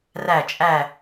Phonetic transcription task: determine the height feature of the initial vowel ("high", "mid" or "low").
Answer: low